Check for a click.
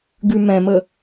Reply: absent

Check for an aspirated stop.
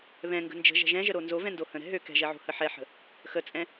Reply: absent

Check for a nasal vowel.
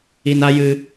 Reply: absent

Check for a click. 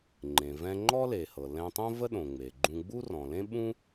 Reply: present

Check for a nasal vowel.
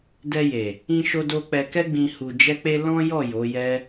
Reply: present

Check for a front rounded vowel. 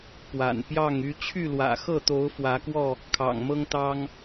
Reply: present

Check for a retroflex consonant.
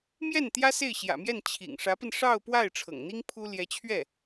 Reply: present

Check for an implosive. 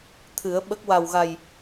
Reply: present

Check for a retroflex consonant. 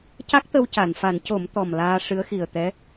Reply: present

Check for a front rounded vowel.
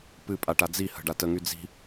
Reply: present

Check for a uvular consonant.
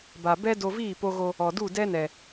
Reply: absent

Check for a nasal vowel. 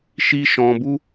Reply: present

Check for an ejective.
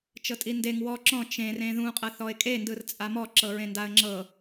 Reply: present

